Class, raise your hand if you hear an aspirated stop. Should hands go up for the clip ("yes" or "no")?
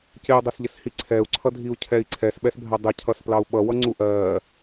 yes